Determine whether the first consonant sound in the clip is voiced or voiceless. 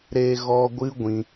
voiced